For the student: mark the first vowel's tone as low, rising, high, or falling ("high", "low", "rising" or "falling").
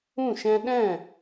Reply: falling